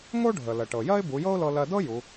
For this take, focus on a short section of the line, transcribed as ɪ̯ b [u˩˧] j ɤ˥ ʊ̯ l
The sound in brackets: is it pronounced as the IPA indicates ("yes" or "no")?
yes